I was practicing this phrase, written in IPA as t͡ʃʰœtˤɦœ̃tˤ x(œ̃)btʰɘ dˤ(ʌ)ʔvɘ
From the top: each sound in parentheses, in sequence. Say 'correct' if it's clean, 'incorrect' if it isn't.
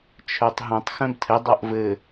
correct, correct

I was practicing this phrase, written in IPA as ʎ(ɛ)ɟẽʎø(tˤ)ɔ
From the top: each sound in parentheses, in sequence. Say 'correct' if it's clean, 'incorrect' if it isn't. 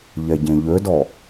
correct, incorrect: d

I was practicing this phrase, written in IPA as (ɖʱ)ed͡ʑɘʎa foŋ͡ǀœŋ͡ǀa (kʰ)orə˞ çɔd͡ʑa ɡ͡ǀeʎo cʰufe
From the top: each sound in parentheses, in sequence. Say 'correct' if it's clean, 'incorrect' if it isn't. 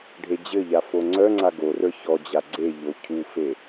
correct, incorrect: ɡ

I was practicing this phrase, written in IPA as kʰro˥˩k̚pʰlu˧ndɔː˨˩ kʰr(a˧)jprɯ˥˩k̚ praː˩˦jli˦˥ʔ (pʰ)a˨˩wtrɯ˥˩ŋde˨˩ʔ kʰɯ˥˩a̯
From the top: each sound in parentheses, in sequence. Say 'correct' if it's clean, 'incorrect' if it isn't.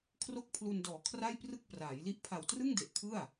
incorrect: a˥˩, correct

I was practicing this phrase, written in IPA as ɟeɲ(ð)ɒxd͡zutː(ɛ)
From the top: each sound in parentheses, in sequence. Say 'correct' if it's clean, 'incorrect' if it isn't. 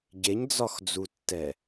incorrect: d͡z, correct

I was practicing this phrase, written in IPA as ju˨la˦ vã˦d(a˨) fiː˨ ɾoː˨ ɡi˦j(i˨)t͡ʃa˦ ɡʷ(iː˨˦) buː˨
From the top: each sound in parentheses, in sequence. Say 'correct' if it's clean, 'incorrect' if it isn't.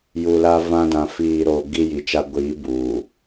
incorrect: ã˨, correct, correct

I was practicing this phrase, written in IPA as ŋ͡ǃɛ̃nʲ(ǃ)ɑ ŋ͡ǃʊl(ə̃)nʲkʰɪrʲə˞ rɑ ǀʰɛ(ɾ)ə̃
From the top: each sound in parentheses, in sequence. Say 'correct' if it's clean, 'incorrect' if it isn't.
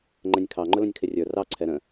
incorrect: kʰ, correct, correct

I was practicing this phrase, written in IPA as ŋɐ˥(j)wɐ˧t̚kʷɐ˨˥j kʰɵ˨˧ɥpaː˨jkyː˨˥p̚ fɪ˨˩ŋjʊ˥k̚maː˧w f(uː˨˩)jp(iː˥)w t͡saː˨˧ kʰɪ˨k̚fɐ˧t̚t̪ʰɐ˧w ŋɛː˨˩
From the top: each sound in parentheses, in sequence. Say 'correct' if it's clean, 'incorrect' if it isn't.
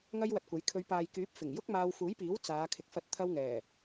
correct, incorrect: uː˨˥, incorrect: iː˨˥

